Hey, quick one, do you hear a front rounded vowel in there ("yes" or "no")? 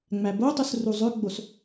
yes